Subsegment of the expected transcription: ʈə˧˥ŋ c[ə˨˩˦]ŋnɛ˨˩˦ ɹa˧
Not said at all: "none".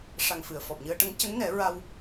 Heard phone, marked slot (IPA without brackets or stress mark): ə˧˥